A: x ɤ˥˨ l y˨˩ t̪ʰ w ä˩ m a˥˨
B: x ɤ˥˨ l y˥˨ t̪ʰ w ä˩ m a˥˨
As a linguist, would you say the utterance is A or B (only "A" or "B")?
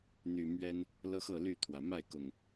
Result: B